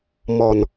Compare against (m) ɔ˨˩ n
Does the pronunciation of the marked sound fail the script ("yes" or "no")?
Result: no